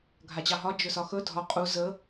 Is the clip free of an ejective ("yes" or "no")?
no